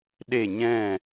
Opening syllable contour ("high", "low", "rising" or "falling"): falling